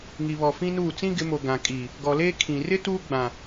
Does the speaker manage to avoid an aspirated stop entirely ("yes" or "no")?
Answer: no